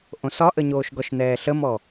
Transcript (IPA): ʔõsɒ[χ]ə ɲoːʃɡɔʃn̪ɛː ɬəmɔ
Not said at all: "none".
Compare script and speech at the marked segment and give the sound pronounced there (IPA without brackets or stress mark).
ʔ